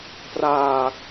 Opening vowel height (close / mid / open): open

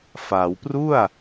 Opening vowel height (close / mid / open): open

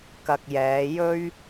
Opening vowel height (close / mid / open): open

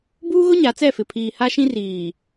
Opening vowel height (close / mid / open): close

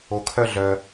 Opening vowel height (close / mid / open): mid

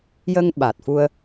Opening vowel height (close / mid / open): mid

